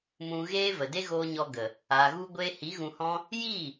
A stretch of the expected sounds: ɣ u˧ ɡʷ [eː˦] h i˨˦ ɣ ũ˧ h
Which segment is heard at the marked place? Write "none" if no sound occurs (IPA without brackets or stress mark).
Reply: eː˧